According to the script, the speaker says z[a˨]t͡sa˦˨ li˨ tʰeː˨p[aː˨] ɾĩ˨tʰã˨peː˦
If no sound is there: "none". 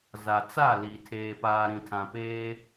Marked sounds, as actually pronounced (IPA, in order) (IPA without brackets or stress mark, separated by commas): a˨, aː˨